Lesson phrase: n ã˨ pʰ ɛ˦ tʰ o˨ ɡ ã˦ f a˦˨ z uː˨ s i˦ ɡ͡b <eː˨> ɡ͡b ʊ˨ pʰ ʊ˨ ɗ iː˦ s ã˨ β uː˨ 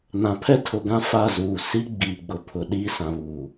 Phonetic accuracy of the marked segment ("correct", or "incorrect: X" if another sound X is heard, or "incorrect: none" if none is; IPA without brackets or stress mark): incorrect: iː˨